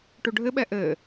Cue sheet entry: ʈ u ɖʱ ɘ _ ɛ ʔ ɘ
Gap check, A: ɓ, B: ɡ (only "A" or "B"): A